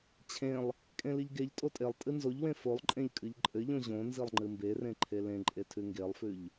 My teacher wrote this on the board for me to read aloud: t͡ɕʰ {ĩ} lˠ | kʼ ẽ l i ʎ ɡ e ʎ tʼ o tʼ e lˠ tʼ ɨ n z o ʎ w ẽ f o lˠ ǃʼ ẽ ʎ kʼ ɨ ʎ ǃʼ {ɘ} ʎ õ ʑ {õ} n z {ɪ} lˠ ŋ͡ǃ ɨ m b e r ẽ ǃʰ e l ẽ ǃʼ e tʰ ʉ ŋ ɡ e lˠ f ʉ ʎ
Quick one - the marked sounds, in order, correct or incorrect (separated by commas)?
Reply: incorrect, correct, correct, incorrect